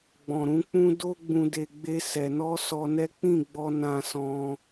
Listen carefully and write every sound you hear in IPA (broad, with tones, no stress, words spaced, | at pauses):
ɡ͡bɔ̃˨ɾũ˨˦k͡pũ˦ do˦ ɡ͡bũ˧de˧ɡ͡be˦ sɛ˧ nɔ˦sɔ˧nɛ˦ k͡pĩ˦˨ɡ͡bɔ˧ nã˧sɔ̃˧